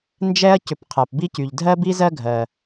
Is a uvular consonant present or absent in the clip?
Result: present